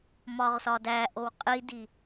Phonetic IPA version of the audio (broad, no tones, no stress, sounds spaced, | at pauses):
m ɒ ʁ s ɒ d æ ʔ o w qʼ i d i